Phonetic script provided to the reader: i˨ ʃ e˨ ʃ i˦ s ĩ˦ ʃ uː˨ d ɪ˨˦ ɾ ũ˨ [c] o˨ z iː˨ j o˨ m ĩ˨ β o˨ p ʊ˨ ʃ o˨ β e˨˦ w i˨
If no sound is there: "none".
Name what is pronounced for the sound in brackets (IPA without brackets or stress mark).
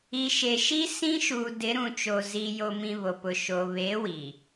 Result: t͡ʃ